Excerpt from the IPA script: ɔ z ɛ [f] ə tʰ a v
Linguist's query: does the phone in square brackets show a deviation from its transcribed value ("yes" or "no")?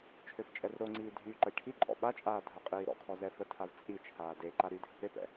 no